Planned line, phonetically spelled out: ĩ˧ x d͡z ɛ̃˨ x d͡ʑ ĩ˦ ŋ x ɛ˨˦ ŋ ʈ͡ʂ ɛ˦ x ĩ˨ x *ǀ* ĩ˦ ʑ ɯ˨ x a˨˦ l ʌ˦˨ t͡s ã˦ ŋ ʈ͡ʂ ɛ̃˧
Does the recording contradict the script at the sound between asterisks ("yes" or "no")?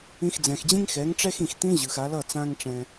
yes